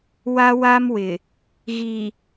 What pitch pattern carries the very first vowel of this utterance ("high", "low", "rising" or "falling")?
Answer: high